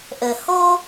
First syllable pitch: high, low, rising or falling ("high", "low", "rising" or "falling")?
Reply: low